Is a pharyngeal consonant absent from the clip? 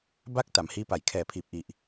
yes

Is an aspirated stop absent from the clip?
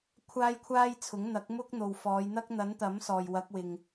no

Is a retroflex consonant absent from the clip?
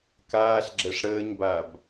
no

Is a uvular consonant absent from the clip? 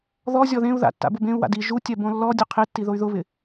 no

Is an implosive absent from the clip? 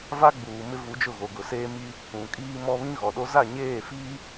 no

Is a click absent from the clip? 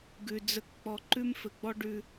no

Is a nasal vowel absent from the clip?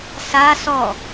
yes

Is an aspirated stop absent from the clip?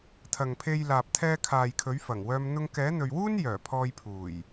no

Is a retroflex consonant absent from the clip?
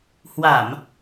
yes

